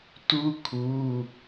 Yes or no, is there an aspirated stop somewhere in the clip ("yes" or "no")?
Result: yes